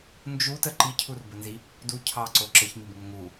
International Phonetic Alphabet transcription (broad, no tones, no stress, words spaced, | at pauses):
nd͡ʒutə ǃicʰurbənzi | du cʰɑǀo ǁəçmibŋə ŋu